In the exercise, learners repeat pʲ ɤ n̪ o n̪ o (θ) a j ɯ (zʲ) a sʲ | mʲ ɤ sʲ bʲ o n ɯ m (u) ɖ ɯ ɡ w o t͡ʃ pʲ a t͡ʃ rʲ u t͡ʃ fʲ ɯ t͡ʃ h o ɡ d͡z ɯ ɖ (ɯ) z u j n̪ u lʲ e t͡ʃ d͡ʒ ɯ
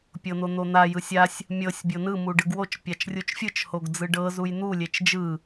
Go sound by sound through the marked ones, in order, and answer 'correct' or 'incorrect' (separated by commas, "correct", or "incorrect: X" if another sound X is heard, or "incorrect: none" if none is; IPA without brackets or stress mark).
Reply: incorrect: n̪, incorrect: sʲ, correct, incorrect: ɤ